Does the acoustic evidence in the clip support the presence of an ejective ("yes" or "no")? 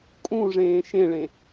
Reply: yes